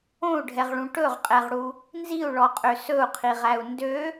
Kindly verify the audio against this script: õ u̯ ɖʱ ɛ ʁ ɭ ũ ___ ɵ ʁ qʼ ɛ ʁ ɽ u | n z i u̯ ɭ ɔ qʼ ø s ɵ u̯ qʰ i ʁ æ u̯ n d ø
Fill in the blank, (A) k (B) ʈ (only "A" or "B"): B